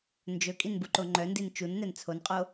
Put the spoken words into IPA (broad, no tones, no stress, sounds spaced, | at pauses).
n d͡ʒ ɵ kʼ i n b u ǃ o ŋ͡ǃ œ n d i n t͡ʃ u n n̪ ɛ n t͡sʰ o n qʼ o